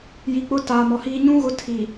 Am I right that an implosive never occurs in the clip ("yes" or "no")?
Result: yes